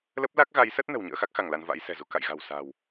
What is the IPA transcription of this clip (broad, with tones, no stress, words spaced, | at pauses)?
lə˦˥p̚la˦˥k̚ɣa˨˦jsə˦˥t̚ nə̤˨˩wɲə̰ː˧˥xa˦˥k̚xa˧˩ŋ la˧nva̰˧˥jsɛ̤˨˩zu˧ ka̰˧˨jɣa̤˨˩w sa̤˨˩w